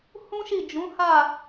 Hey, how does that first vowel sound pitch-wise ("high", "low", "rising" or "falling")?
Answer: high